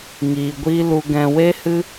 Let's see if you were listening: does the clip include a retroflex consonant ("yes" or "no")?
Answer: no